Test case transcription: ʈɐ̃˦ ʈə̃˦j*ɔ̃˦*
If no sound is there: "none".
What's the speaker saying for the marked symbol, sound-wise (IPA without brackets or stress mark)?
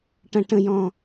ɔ̃˦